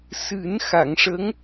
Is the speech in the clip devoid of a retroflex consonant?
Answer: no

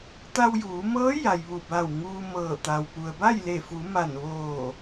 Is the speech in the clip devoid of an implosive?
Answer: yes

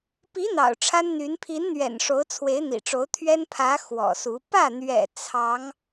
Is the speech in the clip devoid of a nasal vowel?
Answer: yes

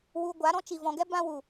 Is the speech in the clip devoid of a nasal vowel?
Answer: no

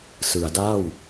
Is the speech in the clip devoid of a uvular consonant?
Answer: yes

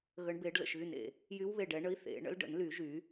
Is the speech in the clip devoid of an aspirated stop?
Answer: yes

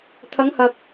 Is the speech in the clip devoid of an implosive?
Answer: yes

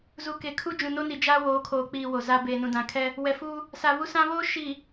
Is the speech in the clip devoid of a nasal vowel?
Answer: no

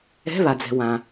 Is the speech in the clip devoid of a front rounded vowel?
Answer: yes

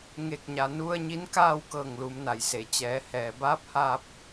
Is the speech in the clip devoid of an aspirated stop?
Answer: yes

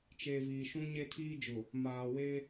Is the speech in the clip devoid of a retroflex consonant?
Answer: yes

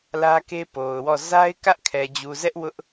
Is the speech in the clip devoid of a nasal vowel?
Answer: yes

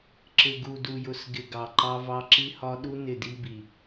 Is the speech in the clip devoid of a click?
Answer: no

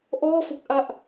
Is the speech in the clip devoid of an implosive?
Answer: yes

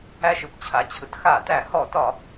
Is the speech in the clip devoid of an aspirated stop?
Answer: no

